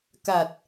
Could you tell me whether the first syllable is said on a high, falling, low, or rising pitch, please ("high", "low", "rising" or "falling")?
low